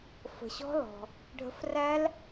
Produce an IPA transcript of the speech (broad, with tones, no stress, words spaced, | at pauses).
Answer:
fə̤˩ɕɔ̤˦˥lɔ̤˩ | ɖʱə̤˨˦fræ˦˥l